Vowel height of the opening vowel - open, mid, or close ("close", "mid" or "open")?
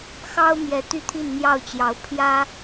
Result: open